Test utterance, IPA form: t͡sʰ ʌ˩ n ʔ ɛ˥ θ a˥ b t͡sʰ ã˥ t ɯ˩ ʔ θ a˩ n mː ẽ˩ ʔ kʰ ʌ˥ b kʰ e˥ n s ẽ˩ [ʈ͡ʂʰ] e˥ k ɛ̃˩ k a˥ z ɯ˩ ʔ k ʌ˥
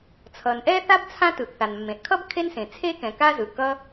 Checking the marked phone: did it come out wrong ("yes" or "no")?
yes